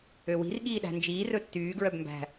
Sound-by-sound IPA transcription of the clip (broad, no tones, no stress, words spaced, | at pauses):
øwi̤r ɠiːɗæ̤nd͡ʒiː rɵtːyː ɡɹœbmbæ̤